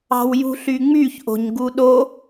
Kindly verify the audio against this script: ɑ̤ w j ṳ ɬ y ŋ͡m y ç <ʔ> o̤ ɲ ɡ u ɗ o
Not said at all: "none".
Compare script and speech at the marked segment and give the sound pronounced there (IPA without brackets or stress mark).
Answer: ʔ